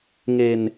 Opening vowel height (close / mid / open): mid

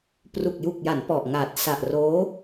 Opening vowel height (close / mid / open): close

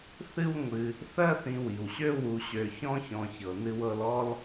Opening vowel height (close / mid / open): close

